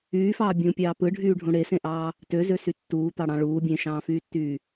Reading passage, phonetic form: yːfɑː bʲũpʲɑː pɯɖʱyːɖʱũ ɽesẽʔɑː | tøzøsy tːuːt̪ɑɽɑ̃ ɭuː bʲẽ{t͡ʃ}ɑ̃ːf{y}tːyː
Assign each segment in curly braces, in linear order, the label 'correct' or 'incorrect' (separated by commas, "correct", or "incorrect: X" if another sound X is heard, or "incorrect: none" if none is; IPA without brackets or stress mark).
incorrect: ʃ, incorrect: yː